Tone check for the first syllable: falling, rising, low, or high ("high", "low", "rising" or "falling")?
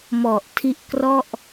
low